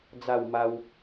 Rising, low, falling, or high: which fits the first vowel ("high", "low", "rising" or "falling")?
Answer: falling